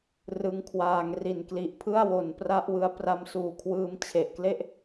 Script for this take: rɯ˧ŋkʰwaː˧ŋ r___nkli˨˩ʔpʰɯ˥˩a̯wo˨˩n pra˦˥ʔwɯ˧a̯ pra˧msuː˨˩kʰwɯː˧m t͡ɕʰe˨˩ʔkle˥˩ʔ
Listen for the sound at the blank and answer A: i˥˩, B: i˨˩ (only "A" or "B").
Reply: B